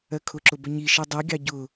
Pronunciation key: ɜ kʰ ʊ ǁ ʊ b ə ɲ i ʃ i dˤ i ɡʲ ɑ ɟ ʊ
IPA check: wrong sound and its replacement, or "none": none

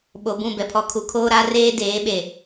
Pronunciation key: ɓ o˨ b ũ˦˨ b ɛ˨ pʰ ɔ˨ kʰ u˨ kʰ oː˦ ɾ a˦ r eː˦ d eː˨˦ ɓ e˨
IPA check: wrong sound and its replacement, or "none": none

